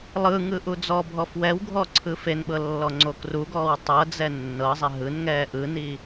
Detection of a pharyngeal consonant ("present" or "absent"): absent